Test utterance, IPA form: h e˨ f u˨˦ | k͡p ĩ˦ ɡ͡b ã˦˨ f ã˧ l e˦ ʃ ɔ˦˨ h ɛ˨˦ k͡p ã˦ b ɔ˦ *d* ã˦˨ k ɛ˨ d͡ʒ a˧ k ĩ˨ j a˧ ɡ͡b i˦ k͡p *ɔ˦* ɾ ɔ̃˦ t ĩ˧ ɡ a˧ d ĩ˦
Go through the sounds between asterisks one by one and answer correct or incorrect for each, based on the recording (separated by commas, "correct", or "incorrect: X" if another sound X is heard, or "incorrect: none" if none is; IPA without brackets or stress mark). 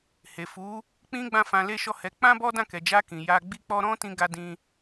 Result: correct, correct